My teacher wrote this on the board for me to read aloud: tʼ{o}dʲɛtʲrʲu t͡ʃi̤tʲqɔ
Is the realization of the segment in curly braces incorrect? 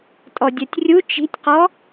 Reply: yes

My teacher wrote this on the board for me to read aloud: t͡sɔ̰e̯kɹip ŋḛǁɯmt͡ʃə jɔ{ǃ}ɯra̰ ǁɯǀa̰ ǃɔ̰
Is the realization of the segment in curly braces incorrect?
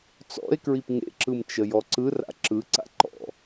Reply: yes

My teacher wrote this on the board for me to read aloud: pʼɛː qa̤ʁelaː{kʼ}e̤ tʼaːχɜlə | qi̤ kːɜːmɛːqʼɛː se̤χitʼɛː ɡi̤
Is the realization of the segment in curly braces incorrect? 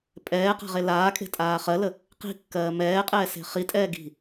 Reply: no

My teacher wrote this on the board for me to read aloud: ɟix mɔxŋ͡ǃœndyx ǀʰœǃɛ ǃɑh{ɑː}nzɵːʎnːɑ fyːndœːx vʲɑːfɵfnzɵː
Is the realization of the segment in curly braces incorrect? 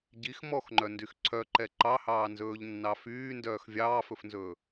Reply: no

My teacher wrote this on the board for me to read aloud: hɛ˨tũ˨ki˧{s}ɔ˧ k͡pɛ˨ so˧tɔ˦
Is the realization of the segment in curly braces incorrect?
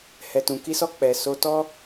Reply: no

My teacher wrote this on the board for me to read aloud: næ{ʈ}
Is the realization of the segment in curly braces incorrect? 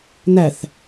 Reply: yes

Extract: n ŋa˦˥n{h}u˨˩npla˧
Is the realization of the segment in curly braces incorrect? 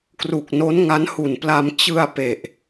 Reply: no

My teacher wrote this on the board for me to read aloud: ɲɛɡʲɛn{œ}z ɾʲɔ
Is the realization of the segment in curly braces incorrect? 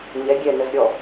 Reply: yes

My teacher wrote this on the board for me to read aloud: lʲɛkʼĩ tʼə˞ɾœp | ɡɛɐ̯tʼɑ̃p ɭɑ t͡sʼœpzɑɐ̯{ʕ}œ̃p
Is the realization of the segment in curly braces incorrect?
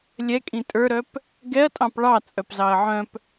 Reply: no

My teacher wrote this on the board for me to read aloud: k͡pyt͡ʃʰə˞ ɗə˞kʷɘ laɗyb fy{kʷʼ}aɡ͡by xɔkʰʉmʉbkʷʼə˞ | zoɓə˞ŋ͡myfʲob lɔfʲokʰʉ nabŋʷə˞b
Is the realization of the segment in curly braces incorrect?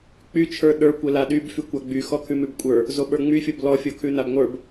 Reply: yes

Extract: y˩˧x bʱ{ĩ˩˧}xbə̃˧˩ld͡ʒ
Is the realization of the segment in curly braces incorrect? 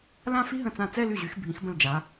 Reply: no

